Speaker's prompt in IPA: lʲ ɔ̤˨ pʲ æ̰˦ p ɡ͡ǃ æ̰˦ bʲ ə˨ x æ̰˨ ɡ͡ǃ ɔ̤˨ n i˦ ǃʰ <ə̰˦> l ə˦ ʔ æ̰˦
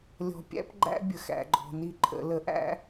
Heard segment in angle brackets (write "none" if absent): ə̰˨˦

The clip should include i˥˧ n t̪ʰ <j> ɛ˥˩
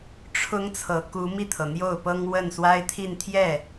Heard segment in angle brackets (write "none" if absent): j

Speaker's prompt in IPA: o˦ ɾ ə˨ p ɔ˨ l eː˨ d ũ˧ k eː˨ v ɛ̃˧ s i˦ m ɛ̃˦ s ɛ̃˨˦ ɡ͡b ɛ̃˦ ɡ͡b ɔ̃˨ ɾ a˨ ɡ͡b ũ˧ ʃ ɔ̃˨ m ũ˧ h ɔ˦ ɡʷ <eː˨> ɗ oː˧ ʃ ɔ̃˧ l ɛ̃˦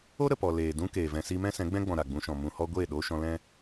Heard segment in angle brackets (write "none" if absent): eː˦˨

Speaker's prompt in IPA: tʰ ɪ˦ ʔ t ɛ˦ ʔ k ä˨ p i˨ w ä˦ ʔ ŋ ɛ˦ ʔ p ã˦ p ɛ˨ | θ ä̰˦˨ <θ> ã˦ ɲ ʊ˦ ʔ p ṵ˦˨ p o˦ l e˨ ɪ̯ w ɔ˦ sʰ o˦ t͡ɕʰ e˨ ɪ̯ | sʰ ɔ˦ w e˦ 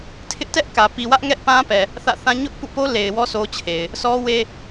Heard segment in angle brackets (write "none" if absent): θ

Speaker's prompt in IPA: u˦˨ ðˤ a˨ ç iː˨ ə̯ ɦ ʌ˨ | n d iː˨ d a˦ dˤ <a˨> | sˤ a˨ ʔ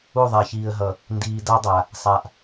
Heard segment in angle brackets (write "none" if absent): a˨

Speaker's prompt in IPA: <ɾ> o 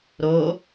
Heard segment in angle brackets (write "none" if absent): ɾ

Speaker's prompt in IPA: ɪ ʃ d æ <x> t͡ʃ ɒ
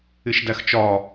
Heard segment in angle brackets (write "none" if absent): x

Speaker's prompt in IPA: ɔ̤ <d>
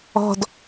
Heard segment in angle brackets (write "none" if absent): d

